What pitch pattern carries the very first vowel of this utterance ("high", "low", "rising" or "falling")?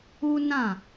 high